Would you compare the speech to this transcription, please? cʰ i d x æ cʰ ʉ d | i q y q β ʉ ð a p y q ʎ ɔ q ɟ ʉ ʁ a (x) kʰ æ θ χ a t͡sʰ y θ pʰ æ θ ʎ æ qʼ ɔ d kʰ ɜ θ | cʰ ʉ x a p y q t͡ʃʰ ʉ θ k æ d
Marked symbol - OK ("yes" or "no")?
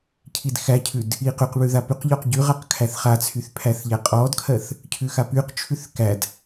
no